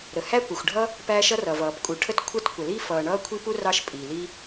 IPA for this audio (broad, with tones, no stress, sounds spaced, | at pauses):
ɾ ə˩ h æ˥ kʷ ʌ˩ xʷ ɖʱ ʌ˥ | p æː˥ ʃ ʌ˥ r ʌ˩ v ʌː˩ p kʼ u˩ ʈʰ ə˥ t kʷʰ ə˥ t kʷ ə˩ l i˥ f ʌː˩ ɳ ʌː˥ kʷʰ i˥ p u˥ r ɑ˥ ʃ pʼ iː˩ l i˥